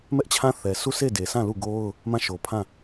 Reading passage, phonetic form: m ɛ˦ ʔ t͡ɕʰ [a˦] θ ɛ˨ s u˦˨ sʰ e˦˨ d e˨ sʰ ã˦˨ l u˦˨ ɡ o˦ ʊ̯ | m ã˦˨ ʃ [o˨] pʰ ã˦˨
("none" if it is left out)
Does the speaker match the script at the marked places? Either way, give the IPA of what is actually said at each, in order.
ã˦, o˨

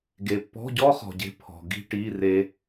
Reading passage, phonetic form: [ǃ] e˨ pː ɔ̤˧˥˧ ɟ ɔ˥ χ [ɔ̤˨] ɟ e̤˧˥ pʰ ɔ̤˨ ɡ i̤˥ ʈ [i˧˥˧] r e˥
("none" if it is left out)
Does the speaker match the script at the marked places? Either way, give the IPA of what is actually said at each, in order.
ɡ, ɔ̤˨, i˧˥˧

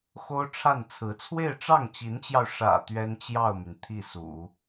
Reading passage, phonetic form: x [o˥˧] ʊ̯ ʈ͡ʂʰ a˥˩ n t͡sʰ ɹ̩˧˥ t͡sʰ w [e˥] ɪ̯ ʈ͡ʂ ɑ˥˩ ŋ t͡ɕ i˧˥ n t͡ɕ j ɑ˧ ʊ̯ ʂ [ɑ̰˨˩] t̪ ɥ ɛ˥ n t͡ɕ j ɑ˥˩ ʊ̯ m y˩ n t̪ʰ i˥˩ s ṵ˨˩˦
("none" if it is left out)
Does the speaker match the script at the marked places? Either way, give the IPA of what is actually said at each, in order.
o˥, e˥˧, ä̰˨˩

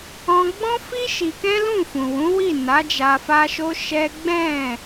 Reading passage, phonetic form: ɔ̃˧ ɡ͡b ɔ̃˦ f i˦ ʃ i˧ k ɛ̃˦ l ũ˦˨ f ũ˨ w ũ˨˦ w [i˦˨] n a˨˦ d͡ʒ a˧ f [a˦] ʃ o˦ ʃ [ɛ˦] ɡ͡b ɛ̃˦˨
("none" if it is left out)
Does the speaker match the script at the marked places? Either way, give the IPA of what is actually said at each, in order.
i˦˨, a˦, ɛ˦

